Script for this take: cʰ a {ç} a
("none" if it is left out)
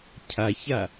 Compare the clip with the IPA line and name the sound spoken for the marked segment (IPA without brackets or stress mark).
ç